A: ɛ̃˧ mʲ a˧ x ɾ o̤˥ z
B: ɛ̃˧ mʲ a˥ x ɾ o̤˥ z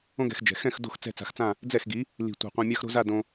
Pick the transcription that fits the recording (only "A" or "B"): B